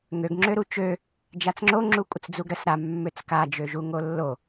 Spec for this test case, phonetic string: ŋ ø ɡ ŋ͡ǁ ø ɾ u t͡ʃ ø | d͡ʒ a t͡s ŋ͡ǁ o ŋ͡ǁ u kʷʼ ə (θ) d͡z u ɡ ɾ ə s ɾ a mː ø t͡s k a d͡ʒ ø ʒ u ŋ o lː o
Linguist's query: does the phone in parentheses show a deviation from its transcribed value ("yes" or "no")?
yes